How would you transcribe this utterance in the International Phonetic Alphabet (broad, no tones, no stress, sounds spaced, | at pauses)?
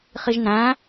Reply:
χ i ʒ n æ̃